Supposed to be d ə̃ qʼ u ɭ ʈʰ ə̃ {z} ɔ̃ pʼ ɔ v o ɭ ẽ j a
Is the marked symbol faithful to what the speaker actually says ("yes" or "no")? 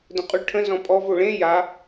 yes